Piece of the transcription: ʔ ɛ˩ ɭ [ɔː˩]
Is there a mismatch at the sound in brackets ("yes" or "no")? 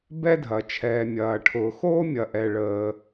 yes